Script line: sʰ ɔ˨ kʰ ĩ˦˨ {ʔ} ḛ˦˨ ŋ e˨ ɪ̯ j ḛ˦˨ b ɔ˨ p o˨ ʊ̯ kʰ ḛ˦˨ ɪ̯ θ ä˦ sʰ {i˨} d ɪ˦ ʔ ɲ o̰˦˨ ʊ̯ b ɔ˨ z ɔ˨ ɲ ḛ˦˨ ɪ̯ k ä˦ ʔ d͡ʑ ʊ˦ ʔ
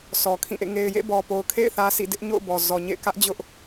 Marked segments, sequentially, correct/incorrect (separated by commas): correct, incorrect